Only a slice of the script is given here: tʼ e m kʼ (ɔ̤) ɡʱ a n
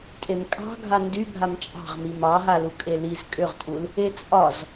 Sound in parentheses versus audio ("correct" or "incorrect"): incorrect